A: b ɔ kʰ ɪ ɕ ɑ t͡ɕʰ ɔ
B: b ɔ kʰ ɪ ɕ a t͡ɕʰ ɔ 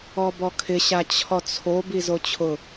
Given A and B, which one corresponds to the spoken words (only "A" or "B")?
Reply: B